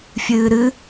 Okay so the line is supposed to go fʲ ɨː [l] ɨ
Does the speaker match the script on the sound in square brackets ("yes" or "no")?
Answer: no